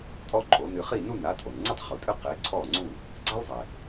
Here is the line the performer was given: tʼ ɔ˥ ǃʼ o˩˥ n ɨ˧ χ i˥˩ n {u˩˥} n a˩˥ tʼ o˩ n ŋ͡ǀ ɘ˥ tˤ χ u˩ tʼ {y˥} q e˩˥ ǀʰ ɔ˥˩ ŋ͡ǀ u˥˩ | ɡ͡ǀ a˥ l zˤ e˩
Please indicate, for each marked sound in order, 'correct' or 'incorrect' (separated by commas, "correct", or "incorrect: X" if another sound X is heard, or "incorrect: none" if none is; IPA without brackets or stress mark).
incorrect: u˥˩, incorrect: ɨ˥